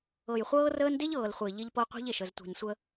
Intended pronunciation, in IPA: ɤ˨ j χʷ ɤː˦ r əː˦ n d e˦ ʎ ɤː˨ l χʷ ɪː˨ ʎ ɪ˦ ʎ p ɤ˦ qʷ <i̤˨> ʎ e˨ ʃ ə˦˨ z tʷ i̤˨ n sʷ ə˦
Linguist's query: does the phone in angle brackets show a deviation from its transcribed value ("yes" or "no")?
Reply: yes